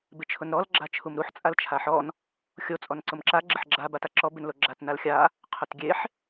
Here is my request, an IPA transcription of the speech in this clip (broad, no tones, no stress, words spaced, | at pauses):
bɪt͡ʃʰʊnɾɔl ɡ͡ǁat͡ʃʰumɾuħ t͡sʼalt͡ʃʰaħɔn | xʲo t͡sʼɔnǀʊmǁa ɡ͡ǁɪħɡ͡ǁa bataǁɔ bɪnloɡ͡ǁat nalxʲa | qʰʊtɡʲeħ